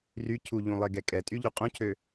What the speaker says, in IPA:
r y cʰ u ʎ ũ lˠ e ɡ ɛ kʼ ɛ tʼ y ʎ y qʼ ũ cʰ ø

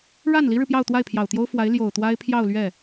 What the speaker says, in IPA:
ɻ a˥˩ n l i˥ ɻ ɻ̩˨ p j ɑ˥˧ ʊ̯ t̪ w a˥˩ ɪ̯ pʰ j ɑ˨˩ ʊ̯ t̪ j o˥ ʊ̯ f w a˧˥ ɪ̯ l j o˨˩ ʊ̯ t̪ w a˥ ɪ̯ pʰ j ɑ˥˧ ʊ̯ l ɥ ɛ˥˩

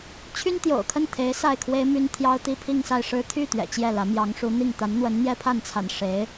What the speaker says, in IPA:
t͡ɕʰ y˥ n t̪ j o̰˨˩ ʊ̯ kʰ ə˥˩ n t̪ʰ e˧˥ ɪ̯ s a˥˩ ɪ̯ kʰ w e˥ ɪ̯ m y˥ n t̪ʰ j ɑ˥ ʊ̯ t̪ i˥ pʰ i˥˧ ŋ s a˥˩ ɪ̯ ʂ ɻ̩˥ t̪ʰ y˥˩ t̪ ɥ ɛ̰˨˩ t͡ɕ j ɛ˥˩ l ä˧˥ m j ɑ˧˥ ŋ ʂ u˧˥ n̪ i˥˩ ŋ t̪ a˧˥ n n̪ w ə˧˥ n n̪ j ɛ˥ pʰ a˥˩ n t͡sʰ a̰˨˩ n ʂ e˧˥ ɪ̯

